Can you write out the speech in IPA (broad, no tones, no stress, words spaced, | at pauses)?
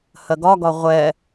hɜɡɒɡɒ ʁʷɛ